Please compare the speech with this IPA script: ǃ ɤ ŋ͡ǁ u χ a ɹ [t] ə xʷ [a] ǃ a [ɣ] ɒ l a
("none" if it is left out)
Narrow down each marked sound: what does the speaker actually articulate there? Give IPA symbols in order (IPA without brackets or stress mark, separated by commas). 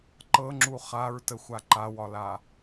t, a, w